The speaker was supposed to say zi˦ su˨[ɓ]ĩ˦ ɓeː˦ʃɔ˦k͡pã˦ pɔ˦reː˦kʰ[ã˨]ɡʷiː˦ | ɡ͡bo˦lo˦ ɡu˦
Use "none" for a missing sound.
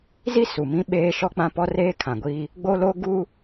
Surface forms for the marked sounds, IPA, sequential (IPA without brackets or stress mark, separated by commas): m, ã˨